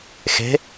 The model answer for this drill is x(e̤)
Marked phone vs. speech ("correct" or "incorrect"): correct